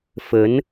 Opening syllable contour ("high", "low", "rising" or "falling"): rising